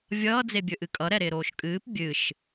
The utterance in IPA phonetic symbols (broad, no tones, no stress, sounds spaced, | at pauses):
vʲ ʌː d͡z e bʲ ɵ ʔ ɨ kʼ ʌ ɾ ɛ ɾ ɪː ɾ oː ʃ kʼ ɨː p bʲ ɨ ʃ